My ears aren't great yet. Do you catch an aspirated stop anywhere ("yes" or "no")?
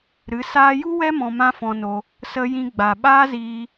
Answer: no